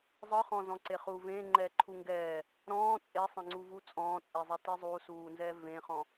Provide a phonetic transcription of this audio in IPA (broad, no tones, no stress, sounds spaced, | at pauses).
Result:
zˤ ɯ χ ɔ̃ z ɔ̃ ǀ e χ uː v ẽː ŋ͡ǃ ɛː ǃʰ u ŋ ɡ ɛː | ɾ ɔ̃ː t͡sʼ e sˤ ẽ ŋ͡ǀ u v u t͡sʼ ɔ̃ː t͡sʼ e zˤ ɛ t i zˤ u s uː n z ɛː v ẽ χ ɔ̃